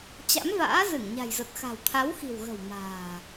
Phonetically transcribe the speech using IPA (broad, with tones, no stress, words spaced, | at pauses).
t͡ɕa̰˧˥mva̰ː˧˥ zɨ˧˩ŋɲa̤˨˩jzə˨˩t̚ xa̤˨˩w t̪ʰa˨˦wxi̤˨˩wɣə̤˨˩w ma̤ː˨˩